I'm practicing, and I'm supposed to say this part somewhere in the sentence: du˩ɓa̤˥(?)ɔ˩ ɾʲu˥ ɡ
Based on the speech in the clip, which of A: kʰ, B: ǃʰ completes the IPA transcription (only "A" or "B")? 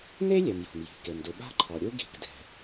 B